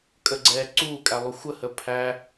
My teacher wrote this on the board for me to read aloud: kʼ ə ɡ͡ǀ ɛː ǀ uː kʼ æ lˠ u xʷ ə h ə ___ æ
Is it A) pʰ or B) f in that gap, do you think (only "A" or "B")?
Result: A